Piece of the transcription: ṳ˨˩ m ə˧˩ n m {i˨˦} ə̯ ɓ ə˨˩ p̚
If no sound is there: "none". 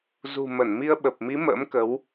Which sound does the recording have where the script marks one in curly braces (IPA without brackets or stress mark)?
i˧